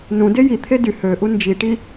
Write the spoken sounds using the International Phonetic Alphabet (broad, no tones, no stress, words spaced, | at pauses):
nũde jit̪ʰe dy høʔu nd͡ʒiʈi